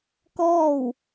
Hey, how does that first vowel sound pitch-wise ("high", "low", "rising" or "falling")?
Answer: falling